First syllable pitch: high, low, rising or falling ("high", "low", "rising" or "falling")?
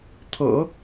low